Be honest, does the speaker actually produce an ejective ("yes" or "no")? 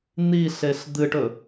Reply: no